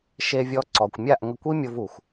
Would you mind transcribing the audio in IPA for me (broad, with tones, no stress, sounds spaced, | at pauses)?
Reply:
ʃ e˧ vʲ ɔ˧ ǀ ɔ˨ kʷ mʲ a˦˨ ʔ ŋ ə˧ kʷ i˦ mʲ o˧ v u˨ xʷ